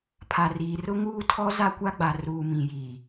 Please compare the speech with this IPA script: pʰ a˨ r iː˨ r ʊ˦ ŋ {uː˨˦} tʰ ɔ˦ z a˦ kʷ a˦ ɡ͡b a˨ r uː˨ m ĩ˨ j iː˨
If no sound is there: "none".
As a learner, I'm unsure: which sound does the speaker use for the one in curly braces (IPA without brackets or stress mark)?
uː˦